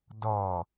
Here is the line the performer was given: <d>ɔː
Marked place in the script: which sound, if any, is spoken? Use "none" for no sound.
d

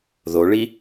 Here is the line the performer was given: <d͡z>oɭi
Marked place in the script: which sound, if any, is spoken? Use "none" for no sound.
ð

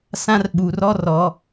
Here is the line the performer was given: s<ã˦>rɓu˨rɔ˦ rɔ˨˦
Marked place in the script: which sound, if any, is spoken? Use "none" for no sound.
ã˦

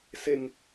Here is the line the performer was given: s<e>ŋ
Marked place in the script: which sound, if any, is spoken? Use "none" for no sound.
e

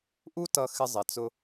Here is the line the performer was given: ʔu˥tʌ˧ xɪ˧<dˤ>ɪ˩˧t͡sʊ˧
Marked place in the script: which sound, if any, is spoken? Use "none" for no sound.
zˤ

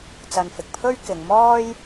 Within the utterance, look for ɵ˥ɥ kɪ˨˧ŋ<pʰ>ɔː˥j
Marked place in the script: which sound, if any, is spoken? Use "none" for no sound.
m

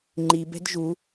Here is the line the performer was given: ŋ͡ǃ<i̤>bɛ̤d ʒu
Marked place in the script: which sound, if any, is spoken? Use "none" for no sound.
i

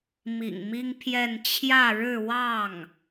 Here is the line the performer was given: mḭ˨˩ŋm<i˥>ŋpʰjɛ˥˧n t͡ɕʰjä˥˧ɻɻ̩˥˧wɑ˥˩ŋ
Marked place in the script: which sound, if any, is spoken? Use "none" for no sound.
i˥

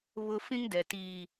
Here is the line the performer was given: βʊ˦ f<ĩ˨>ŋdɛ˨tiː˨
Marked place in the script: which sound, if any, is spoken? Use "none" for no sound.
ĩ˦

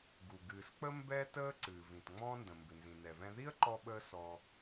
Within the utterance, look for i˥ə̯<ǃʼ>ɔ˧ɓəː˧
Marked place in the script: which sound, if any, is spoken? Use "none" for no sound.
ǃ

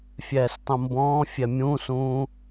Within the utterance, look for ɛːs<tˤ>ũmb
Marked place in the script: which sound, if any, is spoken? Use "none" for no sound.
tˤ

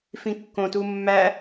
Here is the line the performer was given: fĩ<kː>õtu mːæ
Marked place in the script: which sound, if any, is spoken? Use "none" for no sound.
kː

